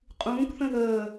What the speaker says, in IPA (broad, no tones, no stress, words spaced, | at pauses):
qʼũːkθə̃ ðəː